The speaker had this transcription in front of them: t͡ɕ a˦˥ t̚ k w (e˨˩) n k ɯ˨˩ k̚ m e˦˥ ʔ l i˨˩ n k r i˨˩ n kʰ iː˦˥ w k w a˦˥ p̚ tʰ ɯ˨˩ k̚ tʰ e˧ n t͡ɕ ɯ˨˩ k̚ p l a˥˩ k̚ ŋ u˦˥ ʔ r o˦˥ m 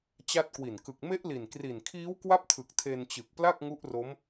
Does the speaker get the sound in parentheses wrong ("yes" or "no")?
yes